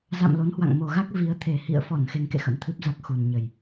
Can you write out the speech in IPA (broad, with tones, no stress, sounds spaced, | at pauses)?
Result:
z a̰˧˨ m l o˨˦ n h w a̰˧˨ ŋ m o˨˩ ɣ a˦˥ k̚ v i˨˦ ə̯ t̪ʰ e˨˩ h ḭ˧˨ ə̯ f ɔ˧˩ n x e˧ ŋ k ḛ˧˨ x ə̰˧˥ m t̪ʰ ɨ˦˥ p̚ z a˦˥ k̚ x u˨˩ n ɲ ə˨˩ j